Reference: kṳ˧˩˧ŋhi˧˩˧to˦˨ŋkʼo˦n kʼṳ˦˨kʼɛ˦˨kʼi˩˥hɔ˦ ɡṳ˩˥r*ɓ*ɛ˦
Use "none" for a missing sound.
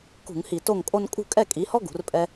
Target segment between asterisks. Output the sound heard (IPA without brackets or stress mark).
pʼ